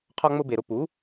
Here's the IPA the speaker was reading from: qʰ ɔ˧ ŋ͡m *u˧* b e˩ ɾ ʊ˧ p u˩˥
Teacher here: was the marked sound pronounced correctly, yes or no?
no